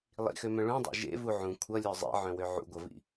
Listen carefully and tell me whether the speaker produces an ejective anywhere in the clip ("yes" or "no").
no